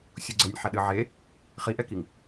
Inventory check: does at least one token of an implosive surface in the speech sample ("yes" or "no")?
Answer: yes